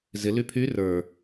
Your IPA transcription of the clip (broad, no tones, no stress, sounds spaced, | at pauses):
z ɪ l y pʰ y r ə˞